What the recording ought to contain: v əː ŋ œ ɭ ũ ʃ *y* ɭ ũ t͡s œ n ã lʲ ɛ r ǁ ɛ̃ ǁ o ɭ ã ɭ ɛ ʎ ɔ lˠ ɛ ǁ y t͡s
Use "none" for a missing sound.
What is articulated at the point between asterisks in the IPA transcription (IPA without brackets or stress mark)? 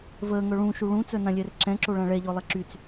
u